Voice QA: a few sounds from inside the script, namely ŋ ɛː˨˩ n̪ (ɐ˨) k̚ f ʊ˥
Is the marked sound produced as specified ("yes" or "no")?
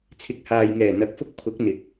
no